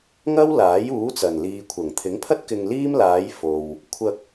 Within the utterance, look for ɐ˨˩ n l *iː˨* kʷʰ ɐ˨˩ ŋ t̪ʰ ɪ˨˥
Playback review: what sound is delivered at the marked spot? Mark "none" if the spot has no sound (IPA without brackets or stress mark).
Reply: iː˨